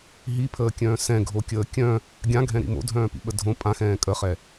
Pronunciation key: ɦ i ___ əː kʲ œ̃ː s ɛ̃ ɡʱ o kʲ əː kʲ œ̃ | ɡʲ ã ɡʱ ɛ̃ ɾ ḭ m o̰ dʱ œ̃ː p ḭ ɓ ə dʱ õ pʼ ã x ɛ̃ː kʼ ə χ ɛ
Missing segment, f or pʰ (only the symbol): pʰ